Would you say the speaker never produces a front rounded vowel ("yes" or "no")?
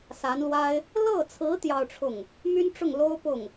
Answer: no